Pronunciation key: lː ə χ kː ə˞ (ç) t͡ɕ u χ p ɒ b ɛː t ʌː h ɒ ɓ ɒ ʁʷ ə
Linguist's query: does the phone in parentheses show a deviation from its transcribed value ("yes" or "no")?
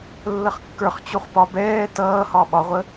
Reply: yes